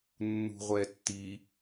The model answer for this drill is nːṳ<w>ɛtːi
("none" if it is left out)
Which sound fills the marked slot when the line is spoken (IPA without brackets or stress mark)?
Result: ʁʷ